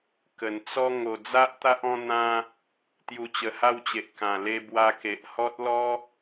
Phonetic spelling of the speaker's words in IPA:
k ə˨˩ n t͡s ɔ˦ ŋ o˨˩ d͡z a˦ ʔ t̪ a˦ ʔ ɔ̃˥˧ n̪ ã˦ | t̪ j u˧ t͡ɕ ə˧ h a˥˧ w t͡ɕ e˨ ʔ k ã˨˩ l e˧ b w a˧ k e˨ ʔ h ɔ˦ t̚ l ɔ˦

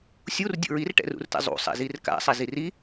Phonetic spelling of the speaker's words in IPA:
sʲ u r dʲ ṵ ɹ i r ʈ ɛ̰ r ṵ r t ɛ̰ zˤ ṵ sˤ ɛ̰ z i r k a̰ sˤ ɛ z i r i

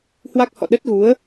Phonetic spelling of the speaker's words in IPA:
h w a˦˥ k̚ h ɔ̰˧˨ ɗ ə˦˥ t̚ ɣ u˨˦ ə̯

